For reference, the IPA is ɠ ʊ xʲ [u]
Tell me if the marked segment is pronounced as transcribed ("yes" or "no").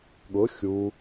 yes